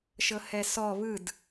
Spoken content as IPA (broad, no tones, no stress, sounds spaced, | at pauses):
ʃ ɤ h ɛ s ɔ β ɯ d